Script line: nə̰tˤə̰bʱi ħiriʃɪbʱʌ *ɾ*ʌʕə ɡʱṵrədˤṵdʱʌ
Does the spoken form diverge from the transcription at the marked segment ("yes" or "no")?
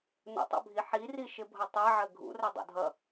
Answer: yes